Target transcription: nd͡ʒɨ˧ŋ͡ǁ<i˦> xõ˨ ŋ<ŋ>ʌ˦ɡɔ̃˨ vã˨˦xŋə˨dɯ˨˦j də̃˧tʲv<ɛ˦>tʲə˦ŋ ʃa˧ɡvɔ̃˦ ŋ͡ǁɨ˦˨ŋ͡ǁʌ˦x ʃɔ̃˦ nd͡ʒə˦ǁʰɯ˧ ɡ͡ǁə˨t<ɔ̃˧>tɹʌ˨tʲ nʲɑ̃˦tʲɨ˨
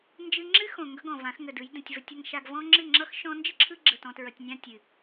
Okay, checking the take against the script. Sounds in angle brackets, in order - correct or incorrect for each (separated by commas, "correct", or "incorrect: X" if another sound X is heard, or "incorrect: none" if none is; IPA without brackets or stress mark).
incorrect: ɨ˦, incorrect: ɡ, incorrect: ə˦, incorrect: ɔ̃˨